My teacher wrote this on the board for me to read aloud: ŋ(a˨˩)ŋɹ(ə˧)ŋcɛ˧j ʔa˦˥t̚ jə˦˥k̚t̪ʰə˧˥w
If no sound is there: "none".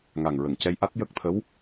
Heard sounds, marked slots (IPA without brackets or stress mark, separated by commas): a˨˩, ə˨˩˨